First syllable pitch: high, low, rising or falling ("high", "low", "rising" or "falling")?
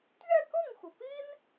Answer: falling